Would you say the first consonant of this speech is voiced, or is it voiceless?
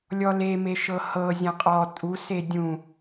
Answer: voiced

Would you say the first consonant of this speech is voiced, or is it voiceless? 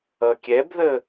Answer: voiceless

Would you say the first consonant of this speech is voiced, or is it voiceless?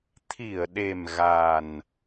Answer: voiceless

